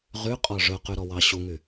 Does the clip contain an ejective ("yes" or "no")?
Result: yes